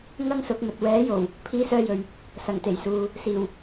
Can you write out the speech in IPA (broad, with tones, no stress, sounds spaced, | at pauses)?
ŋ ɐ˥ ŋ s ʊ˨˥ k̚ m ɵ˨ t̚ w ɛː˨˥ j o˨˩ w | pʰ iː˥ s œː˥ j ɵ˨ ɥ | s ɐ˨˩ ŋ t̪ e˨˩ j s uː˨ | s iː˨˩ w